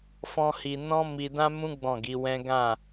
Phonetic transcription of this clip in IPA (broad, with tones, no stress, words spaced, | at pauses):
fɔ̃˦hi˧ nɔ̃˦ mi˧dã˦mũ˦ ɡ͡bɔ̃˦˨ɡi˨˦wɛ̃˦ ɡã˦˨